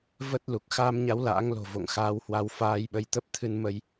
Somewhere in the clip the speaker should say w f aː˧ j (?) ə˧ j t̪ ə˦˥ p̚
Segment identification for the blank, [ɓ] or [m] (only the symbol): ɓ